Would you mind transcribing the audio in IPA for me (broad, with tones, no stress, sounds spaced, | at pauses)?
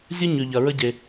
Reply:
zʲ ʊ˥ ɲ ʉ˩ ʎ ɐ˩ ɹ ə˥ ɟ e˩